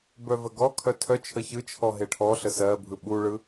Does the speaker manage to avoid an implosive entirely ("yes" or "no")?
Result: no